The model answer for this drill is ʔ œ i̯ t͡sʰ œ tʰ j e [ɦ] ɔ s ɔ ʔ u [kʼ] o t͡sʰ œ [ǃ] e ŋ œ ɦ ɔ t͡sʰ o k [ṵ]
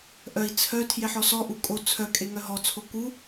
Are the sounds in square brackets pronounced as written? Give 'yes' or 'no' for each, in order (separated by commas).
no, yes, no, no